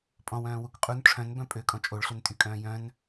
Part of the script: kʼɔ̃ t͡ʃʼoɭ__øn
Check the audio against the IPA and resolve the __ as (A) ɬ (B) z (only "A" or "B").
A